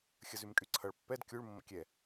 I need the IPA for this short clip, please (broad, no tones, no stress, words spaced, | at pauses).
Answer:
xʲəzymkʼyǀʰʌɭ pːɛd kʲuɭ mːə̰kʲɛ